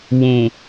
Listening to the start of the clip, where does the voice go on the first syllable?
low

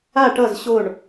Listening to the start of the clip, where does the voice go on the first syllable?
falling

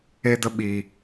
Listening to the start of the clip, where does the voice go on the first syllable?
high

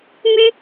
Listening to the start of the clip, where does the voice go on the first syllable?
high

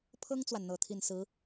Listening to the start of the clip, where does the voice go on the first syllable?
high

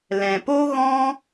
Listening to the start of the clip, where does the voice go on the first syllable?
low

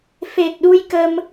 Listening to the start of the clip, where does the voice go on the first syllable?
low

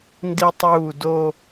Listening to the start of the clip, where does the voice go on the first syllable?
high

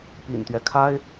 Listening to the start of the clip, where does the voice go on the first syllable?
low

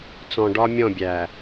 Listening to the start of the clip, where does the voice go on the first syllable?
low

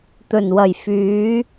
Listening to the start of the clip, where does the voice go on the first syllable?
low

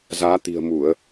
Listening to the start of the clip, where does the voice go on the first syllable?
rising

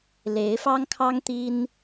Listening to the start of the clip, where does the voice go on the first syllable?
rising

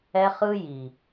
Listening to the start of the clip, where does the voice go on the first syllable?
high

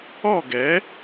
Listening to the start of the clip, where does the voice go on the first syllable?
falling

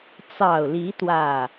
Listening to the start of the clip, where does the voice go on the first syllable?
low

